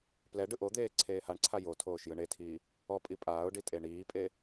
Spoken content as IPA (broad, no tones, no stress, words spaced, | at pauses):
plɛ ɖɯʔod̪eː ǀʰeːhaɳǀʰa jo tʰoːʃjɯɳetʰiː | ɔpʼi pʼaːʊ̯ɖi tʼeɳiːpʼe